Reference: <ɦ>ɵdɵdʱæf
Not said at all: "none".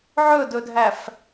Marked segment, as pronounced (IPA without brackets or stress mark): ʕ